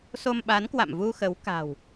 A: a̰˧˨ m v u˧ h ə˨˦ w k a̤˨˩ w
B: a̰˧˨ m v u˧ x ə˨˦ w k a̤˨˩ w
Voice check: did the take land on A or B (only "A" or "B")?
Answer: B